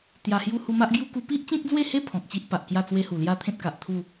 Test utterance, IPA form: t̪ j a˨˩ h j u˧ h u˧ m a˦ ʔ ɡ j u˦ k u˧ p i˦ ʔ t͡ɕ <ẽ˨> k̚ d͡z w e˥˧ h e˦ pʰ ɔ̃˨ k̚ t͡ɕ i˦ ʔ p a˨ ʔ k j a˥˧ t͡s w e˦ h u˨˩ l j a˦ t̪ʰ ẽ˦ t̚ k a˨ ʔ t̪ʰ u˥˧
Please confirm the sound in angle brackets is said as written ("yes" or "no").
no